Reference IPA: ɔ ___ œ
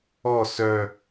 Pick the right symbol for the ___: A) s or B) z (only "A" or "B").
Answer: A